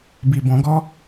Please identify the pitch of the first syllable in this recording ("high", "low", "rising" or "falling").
low